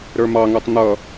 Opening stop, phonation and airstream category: plain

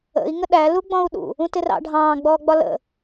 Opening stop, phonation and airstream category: implosive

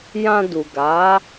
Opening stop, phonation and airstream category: plain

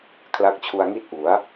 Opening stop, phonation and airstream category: aspirated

